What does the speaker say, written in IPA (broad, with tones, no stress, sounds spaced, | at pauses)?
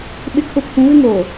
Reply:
ɓ ɪ˨ kʰ ʊ˨ pʰ ũ˨˦ β ɪ˦ ŋ oː˨